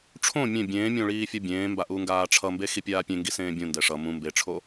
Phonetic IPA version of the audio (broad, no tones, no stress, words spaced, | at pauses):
ʈ͡ʂʰõ mʲẽ bʲẽːmʲõ ɭiːfʲʌbʲẽːmba ʔuŋɡaːʈ͡ʂʰʌmbe xipʲaːpʲẽŋɡi sẽːbʲũndɛ ʂʌ mũ mbeʈ͡ʂʰo